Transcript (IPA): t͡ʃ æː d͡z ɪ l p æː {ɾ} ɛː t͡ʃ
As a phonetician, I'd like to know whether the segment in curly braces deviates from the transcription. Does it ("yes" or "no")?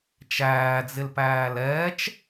yes